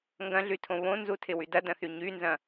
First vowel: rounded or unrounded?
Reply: unrounded